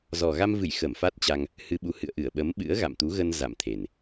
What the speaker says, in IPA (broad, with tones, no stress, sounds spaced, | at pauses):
z ɔ˨˩ ɣ a˧ m v ɨ˧˩ j x ə˧˩ m f a˦˥ t̚ t͡ɕ a˧ ŋ | h ɨ˧ ɓ u˨˦ h ɨ̰˧˨ ə̯ ʔ ɨ˧˩ ə̯ ɓ ə˨˦ m ɓ ɨ̰˧˥ ə̯ ɣ a̰˧˨ m t̪ u˨˦ ɣ ə˧ n z a̰˧˨ m t̪ʰ e˨˩ n